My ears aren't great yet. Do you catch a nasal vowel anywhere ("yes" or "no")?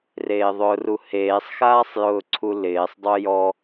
no